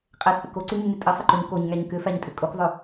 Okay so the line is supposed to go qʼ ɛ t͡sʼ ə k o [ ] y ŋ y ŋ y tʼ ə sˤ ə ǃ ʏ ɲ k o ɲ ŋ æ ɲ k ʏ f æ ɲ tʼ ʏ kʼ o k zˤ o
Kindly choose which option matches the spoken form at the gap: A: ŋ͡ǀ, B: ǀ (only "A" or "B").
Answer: B